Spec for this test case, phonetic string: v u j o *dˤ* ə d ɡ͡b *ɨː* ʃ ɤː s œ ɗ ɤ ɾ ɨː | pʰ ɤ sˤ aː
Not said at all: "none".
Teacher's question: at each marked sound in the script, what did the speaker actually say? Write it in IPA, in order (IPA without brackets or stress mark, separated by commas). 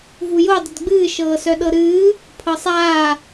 dˤ, ɨː